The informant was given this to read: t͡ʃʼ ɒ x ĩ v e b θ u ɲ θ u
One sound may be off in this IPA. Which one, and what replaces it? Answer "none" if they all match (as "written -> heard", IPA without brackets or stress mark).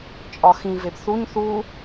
none